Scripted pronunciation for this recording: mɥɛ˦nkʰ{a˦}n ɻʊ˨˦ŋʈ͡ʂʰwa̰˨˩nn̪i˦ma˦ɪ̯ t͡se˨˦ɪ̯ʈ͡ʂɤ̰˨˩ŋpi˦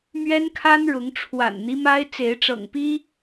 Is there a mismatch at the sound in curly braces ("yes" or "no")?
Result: no